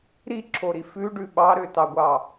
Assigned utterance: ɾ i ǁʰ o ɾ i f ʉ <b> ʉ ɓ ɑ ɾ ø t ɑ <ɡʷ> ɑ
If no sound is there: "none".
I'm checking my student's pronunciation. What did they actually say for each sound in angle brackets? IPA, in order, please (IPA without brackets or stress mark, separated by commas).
ɖ, ɡʷ